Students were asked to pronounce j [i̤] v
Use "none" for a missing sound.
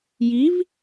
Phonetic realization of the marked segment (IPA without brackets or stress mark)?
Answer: i